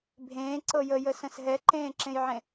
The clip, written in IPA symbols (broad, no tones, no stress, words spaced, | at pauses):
bʱẽːǀɤ jəjəsə̃s ɦɛǃẽːǁẽjʕẽ